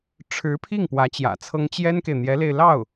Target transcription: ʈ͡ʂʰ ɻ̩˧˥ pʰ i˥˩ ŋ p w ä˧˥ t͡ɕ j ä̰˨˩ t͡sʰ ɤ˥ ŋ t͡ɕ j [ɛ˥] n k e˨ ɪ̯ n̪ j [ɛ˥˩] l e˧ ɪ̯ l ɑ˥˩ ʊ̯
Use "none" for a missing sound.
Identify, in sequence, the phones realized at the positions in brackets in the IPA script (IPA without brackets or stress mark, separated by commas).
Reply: ɛ˥, ɛ˧˥